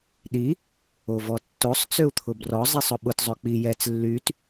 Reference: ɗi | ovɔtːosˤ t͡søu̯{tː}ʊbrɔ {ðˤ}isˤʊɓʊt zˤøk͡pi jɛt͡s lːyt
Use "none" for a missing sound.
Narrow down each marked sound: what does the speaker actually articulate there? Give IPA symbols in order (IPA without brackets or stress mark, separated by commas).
t̪ʰ, zˤ